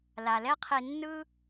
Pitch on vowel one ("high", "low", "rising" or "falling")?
low